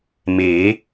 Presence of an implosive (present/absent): absent